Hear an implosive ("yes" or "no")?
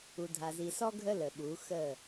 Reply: yes